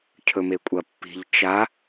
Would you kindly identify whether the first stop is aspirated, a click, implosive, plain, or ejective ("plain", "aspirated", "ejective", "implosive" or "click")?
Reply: aspirated